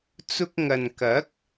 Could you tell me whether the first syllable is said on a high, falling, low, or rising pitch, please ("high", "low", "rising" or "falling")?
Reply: high